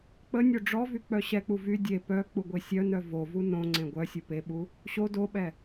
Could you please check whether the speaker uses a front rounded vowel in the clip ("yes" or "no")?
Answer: yes